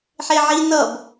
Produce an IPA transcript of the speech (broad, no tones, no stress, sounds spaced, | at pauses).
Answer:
ħ e ʕ i n ʌ b